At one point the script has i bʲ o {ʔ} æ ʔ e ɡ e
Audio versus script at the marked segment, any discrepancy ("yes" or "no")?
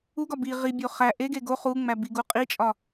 yes